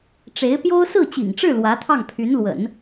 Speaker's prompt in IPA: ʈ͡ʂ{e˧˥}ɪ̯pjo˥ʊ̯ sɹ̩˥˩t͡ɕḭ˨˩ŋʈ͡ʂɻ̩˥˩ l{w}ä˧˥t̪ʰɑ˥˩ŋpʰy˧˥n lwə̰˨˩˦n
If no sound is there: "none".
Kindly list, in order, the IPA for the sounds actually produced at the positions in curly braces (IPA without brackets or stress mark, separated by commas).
e˧˥, w